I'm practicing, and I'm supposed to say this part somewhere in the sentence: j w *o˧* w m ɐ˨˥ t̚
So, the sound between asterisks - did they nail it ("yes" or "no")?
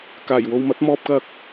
yes